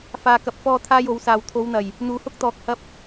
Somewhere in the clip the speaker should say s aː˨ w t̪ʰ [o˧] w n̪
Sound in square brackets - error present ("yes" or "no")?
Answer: yes